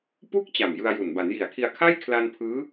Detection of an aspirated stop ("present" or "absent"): present